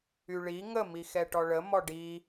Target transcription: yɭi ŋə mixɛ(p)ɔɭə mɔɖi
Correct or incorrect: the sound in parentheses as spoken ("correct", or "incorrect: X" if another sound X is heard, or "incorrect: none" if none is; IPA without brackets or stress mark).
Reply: incorrect: ʈ